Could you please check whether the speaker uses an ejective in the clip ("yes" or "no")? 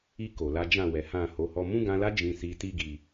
no